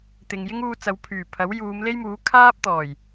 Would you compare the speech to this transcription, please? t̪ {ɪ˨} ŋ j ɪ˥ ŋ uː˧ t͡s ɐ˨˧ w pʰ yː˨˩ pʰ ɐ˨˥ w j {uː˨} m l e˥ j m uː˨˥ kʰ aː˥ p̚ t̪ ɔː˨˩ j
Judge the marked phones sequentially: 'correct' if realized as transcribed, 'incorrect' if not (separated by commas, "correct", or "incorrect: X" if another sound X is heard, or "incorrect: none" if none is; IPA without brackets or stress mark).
correct, incorrect: uː˨˧